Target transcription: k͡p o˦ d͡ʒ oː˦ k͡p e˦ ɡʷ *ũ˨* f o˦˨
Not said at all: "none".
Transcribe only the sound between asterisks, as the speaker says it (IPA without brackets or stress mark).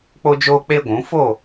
ũ˨˦